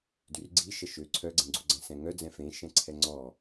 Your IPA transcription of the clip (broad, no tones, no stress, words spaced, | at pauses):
dyrɡ͡ǀi ʃəʃø ǀʰœɡ͡ǀẽɡ͡ǀuɡ͡ǀɛ̃ sɛ̃ŋœ d͡zɛ̃fẽ ʃɛ̃ǀʰɛŋ͡ǀɔ